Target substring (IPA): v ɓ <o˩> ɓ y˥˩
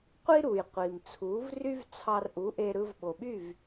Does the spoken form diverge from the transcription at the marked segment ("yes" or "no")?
no